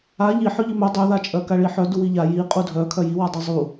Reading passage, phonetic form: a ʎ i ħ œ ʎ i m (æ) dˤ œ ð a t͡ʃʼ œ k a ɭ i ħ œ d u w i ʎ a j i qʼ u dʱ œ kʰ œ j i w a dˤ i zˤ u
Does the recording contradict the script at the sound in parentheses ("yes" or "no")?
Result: yes